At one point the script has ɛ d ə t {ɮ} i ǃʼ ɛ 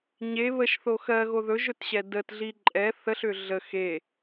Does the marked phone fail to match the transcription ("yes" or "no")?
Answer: no